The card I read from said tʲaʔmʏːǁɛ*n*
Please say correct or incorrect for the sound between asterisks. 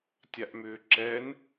correct